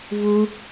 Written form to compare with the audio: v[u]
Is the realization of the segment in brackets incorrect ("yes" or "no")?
no